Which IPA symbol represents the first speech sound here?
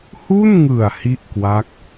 h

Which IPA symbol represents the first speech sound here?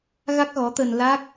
ɣ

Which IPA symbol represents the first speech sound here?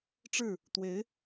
ʈ͡ʂ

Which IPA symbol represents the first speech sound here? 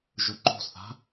ʒ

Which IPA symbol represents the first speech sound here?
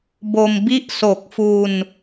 b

